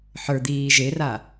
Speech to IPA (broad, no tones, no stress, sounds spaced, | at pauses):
ħ ə˞ d̪ iː ʒ e r a